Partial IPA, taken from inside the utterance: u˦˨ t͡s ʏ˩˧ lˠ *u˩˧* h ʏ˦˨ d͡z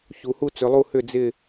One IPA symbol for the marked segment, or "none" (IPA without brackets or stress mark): u˦˨